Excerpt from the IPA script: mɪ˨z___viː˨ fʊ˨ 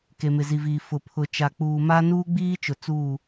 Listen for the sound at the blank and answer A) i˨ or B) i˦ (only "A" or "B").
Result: A